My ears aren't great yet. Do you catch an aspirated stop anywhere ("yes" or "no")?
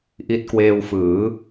no